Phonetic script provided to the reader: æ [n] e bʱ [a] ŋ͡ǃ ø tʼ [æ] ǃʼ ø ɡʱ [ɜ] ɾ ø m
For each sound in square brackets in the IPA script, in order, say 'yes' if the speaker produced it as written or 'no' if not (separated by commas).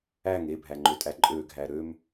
no, no, yes, no